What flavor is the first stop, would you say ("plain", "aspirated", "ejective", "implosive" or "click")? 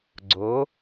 click